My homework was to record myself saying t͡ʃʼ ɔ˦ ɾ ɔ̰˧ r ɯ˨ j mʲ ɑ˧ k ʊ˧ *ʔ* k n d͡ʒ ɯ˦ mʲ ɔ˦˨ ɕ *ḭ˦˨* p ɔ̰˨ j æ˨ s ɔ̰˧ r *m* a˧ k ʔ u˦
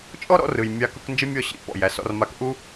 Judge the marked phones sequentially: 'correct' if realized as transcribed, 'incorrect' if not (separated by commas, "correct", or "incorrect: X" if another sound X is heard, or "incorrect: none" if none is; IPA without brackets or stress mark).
incorrect: none, correct, correct